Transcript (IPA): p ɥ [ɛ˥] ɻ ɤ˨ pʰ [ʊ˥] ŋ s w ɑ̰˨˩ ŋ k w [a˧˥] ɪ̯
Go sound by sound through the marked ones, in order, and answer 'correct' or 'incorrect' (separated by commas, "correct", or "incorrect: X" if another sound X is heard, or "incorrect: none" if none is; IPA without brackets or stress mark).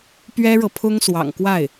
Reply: correct, correct, incorrect: a˥˩